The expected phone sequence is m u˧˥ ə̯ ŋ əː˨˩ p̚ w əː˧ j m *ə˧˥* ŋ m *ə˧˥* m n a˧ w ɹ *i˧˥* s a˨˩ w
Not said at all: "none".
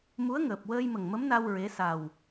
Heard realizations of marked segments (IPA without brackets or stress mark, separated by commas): ə˨˩, ə˧˥, e˧˥